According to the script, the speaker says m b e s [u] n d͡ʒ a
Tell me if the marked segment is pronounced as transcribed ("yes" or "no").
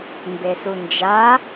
yes